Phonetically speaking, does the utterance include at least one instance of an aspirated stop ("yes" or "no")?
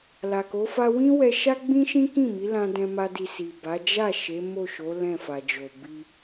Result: no